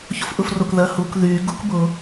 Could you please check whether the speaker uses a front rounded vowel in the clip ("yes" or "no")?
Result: yes